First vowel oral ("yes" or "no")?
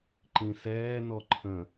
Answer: no